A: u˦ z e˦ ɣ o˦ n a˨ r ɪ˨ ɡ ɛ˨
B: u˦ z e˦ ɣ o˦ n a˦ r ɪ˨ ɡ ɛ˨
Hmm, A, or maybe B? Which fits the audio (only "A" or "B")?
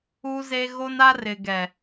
B